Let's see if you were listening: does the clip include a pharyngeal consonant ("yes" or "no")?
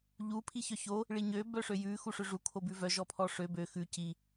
no